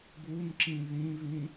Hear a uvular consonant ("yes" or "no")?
no